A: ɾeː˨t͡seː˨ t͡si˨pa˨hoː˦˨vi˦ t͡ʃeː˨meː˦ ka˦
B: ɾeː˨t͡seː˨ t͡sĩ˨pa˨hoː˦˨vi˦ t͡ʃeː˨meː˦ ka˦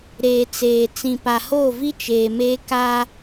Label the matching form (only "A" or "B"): B